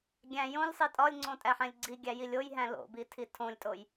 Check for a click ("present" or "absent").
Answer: present